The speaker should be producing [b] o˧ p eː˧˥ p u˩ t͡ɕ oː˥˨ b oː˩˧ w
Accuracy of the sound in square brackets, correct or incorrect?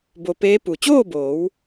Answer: correct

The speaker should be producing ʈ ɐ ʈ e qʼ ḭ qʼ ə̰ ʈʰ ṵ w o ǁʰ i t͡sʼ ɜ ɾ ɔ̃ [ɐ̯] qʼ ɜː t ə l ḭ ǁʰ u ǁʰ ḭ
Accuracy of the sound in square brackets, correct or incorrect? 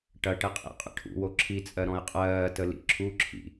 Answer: incorrect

